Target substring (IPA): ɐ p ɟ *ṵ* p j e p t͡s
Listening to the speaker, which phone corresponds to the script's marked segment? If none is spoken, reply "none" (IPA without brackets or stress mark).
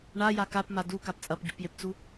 ṵ